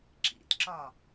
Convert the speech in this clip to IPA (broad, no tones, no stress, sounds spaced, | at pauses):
ǁ ḭ t ǁ ɒ